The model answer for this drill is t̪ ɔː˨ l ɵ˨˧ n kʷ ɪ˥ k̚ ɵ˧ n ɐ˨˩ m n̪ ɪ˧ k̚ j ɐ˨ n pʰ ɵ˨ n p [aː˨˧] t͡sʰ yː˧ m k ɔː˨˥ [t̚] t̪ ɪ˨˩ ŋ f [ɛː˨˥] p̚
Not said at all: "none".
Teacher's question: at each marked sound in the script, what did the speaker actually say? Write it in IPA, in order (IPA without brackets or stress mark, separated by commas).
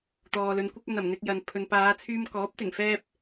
aː˨˧, p̚, ɛː˥